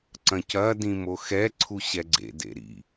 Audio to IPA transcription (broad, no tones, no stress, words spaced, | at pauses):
ǀɐ̃cɐ dĩmoxɛ ǀʰuɕɛɡ͡ǀḛ dḛɾḭ